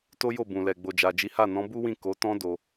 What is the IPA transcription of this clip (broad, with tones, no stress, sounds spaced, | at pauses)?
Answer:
t o˦ j o˦˨ b ũ˨ l ɛ˨ ɡ͡b o˨ d͡ʒ a˨ d͡ʒ i˨˦ h a˦˨ n ɔ̃˨˦ b u˦ w ĩ˦˨ k o˨˦ t ɔ̃˦ d o˧